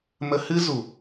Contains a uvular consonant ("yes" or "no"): no